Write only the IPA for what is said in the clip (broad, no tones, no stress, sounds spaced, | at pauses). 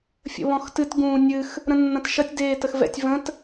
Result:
fʲ ə̰ β ɔ̃ x t ɨ t ɡ ũː nʲ ɨ x | ɾ ə̃ nː ɐ̃ t ʃ ɐ tʲ d eː t ə x v ɛ̰ tʲ v ə̃ t